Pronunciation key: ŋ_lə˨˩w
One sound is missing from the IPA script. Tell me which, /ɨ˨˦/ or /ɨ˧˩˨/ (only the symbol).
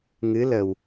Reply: ɨ˨˦